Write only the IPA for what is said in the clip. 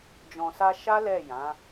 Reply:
d͡ʒ ɔ̃˨ s a˧ ʃ a˦ l ɛ˦˨ j ã˨˦

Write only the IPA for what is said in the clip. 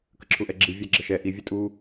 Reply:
k ə ǁʰ u ʔ ɛ ɡ͡ǁ i vʲ æ ɡ͡ǁ ə ʃ ɛ ʔ i vʲ ɛ tʼ u

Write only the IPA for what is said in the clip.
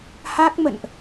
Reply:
h a˦˥ k̚ m ə̰˧˨ n ʔ

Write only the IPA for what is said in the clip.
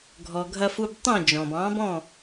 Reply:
ɡʱ ɔ˩ ɡʱ ɐ˧ f u˧ b tˤ õ˥˩ d͡ʒ ɔ̃˩ b ɑ̃˩˥ b ɔ̃˥˩

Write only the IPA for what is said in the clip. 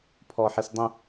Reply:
pʰ ɔ ħ i s dˤ ə̃

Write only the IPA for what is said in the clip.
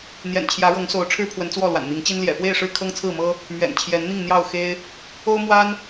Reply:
n̪ j ɛ̰˨˩ n t͡ɕʰ j ä˨˦ ɻ ɤ˨˦ ŋ s o˨˦ ʊ̯ ʈ͡ʂʰ ɻ̩˦ pʰ w ə˨˦ n t͡s w ɔ˥˨ l w a̰˨˩ n n̪ i˨˦ ŋ t͡ɕ i˦ n l j ɛ̰˨˩ f w e˥˨ ɪ̯ ʂ ɻ̩˥˨ kʰ ɤ˦ ŋ t͡sʰ ɹ̩˥˨ m ɤ˦ | m ɥ ɛ̰˨˩ n t͡ɕʰ j ɛ˨˦ n n̪ i˥˨ ŋ n̪ j ɑ˥˨ ʊ̯ x e˦ ɪ̯ | o˦ ʊ̯ m w a˦ n

